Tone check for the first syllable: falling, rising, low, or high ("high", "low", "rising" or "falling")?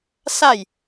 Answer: falling